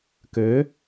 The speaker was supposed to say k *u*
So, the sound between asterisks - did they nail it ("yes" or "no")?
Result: no